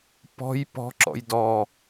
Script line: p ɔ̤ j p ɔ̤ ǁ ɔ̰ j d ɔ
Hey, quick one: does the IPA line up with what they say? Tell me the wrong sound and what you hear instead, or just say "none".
none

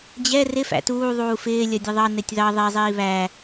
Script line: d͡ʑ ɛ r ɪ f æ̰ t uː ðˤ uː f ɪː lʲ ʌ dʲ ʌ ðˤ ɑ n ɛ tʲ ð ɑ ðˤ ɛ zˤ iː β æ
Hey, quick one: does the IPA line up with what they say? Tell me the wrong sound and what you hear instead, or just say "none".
none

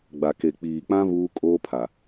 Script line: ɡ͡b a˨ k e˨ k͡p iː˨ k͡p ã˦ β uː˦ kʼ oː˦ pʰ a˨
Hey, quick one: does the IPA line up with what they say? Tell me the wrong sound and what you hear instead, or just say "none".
none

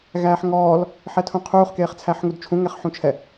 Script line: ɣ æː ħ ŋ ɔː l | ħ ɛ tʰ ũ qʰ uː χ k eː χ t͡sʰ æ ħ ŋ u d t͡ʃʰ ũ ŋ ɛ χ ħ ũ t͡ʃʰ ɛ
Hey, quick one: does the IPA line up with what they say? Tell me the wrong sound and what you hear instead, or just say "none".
none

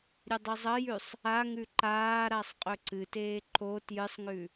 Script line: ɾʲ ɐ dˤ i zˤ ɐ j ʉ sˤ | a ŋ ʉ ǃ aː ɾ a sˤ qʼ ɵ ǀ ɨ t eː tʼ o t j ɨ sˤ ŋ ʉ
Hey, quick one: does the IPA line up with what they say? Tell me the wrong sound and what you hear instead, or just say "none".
tʼ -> ǃ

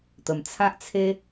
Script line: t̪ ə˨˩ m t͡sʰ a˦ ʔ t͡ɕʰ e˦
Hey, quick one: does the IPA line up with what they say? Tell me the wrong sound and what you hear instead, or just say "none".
t͡ɕʰ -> t͡sʰ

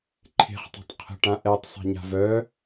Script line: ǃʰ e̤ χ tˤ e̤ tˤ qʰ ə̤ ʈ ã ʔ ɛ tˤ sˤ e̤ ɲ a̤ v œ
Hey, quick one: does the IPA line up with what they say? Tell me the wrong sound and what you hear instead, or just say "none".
none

